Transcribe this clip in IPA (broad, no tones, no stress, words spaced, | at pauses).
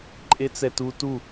ǃʼet͡sɛtu tu